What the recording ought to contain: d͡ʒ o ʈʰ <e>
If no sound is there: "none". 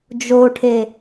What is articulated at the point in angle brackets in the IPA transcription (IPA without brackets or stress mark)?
e